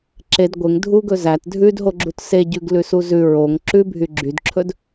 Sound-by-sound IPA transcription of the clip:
ǁ e d ɡʷ e ŋ dʱ u ɡ ɵ z æ t dʱ ʉ d ɦ o ɡ͡ǁ u t s e ɟ ʉ ɡ l ʉ s u z ʉ ɹ o ŋ ǁ ʉ bʱ y ɡ͡ǁ y d ǁʰ ɵ d

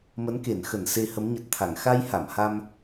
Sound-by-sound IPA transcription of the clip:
m ə˨˦ n k e˧˩ n x ə˧˩ n s e˧ h ə˨˦ m ɲ ə˨˩ t̚ t̪ʰ a˧˩ ŋ x a˧ j h a˧˩ m h a˧ m

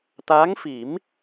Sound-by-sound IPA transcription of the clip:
t̪ aː˧˥ ŋ f i˨˩˦ m

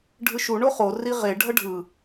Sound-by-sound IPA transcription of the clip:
ɖʱ ɯ ʃ u ɳ o χ o r i ʁ e ɖʱ ʌ ɖʱ ɯ

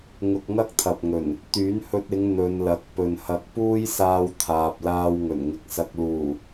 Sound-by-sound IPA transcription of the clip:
ŋ ʊ˧ k̚ ŋ ɐ˥ k̚ t̪ʰ ɐ˨ p̚ ŋ ɵ˨˩ n | t̪ yː˨˥ n h ɵ˧ t̚ ɪ˨˧ ŋ n̪ ɵ˨˧ n l ɐ˨ k̚ p ɵ˨ n h ɐ˧ k̚ p uː˥ j s aː˧ w t̪ʰ aː˨ p̚ l aː˧ w ŋ ɵ˨˩ n ŋ ɪ˨ k̚ s ɐ˧ k̚ l uː˨˩

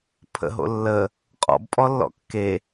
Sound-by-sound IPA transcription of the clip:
pʰ ə̰ ɦ o̰ lː ə | qʼ ɔ̰ b pʼ ɔ lː ɔ̰ kː e

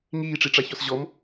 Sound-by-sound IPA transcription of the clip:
ŋ iː ʈ͡ʂ i ʈ͡ʂ a ç ɔ s ʑ ɔ m

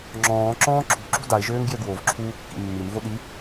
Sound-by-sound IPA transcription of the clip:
ŋ͡ǁ ɔ̃ː ǁ ɔ̃ː ǁʰ ṳ ǁ ṳ d a ɪ̯ ʒ øː ŋ ɡ j ø ɡ w o v ǁʰ uː kː ḭ mː i m v o ɗ i

